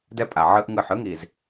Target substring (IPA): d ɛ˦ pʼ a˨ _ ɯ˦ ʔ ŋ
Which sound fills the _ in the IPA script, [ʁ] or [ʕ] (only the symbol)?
ʕ